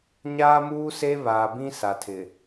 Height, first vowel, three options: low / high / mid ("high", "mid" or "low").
low